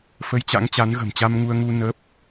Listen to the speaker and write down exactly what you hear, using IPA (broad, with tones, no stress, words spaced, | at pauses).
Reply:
fə˧jt͡ɕa̰˧˥ŋt͡ɕa˨˦n ɣə̤˨˩mt͡ɕa˧mŋu˧ə̯ŋu˧ nəː˦˥p̚